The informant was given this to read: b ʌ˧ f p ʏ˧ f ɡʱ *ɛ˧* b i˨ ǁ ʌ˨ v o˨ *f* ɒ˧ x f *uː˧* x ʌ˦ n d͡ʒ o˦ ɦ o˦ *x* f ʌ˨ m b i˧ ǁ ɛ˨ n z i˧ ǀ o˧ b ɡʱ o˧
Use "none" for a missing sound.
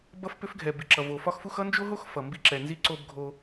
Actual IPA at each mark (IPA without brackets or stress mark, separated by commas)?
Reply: ɛ˨, f, u˧, x